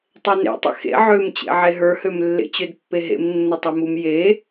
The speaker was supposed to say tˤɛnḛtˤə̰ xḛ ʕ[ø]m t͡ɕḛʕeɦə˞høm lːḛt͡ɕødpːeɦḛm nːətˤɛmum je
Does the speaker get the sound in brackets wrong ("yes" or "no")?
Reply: no